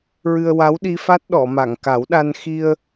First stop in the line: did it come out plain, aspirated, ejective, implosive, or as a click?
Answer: implosive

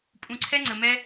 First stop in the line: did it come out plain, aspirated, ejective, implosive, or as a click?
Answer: ejective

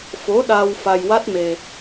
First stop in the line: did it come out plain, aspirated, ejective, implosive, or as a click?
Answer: implosive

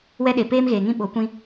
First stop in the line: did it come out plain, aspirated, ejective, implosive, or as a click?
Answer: implosive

